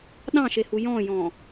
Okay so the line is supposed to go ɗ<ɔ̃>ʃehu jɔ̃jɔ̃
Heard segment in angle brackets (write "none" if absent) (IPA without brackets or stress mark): ɑ̃